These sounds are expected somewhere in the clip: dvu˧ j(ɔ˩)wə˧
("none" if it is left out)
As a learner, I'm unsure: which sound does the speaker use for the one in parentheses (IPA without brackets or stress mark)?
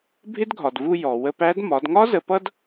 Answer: ɔ˩